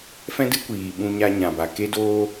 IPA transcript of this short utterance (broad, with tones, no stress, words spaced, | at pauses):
fɛ̃˦dɨ˦kʷiː˨ ɓũ˧ɲa˧ɲã˨ba˨ ke˧doː˧